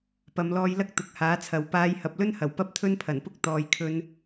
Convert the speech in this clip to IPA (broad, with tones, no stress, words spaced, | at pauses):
pɐ˨˧mlɔː˧jlɐ˥k̚ t̪ʊ˨˥k̚haː˨˥t͡sʰɐ˨w paː˧j hɐ˨p̚lɵ˥nhɐ˨˩w pɐ˥p̚t̪ʰɵ˥npʰɐ˨˩npʊ˥k̚ t̪ɔː˨jkʰɵ˧n